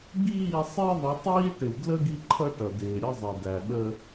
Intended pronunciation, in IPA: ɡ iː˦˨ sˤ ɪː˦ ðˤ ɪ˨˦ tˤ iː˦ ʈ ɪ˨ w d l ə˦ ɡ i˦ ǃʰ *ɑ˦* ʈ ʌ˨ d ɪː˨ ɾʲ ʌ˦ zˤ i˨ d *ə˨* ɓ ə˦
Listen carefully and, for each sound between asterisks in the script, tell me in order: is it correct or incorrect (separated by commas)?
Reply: incorrect, incorrect